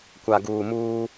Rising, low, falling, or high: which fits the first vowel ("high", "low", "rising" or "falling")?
low